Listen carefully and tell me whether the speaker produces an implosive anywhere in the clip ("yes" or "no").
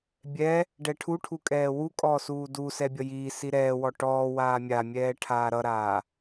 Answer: no